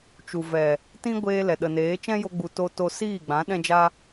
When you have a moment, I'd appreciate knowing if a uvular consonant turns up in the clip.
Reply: no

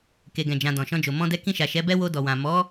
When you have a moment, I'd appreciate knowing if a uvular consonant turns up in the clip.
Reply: no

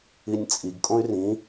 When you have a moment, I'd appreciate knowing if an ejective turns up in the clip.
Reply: yes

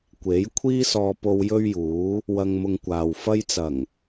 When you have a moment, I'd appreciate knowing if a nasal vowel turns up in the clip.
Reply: no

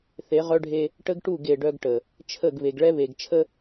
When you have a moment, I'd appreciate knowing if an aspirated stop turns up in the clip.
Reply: yes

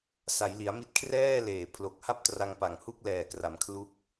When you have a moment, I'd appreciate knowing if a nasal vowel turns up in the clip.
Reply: no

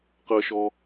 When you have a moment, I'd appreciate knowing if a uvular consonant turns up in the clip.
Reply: yes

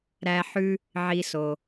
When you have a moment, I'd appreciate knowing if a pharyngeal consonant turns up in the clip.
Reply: yes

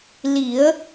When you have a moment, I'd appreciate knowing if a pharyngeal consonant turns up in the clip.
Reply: no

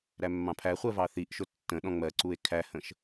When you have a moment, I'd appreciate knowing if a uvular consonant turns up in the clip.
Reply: yes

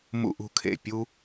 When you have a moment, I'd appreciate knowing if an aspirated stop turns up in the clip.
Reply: yes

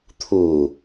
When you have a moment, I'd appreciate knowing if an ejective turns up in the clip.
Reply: no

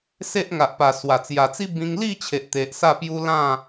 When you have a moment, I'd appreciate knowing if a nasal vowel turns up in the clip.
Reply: yes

